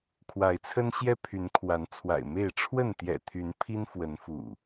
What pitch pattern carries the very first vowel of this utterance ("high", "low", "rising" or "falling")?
rising